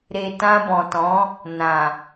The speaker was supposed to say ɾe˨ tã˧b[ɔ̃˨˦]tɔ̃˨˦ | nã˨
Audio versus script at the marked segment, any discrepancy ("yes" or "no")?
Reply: yes